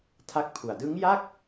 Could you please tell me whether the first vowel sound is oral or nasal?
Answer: oral